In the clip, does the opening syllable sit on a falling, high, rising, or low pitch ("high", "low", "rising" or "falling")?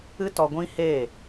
high